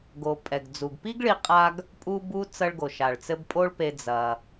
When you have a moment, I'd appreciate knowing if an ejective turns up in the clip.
yes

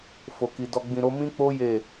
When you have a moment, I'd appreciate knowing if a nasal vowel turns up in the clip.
yes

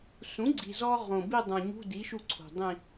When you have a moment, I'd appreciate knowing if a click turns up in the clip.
yes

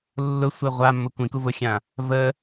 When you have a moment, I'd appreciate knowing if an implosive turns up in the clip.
no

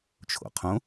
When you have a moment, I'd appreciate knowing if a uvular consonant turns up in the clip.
yes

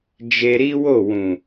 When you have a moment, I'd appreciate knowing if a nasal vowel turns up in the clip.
yes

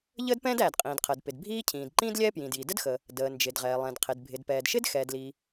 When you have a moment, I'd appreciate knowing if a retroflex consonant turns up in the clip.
no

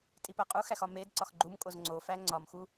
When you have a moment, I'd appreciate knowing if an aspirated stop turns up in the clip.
no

